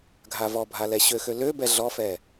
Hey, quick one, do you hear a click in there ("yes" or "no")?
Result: no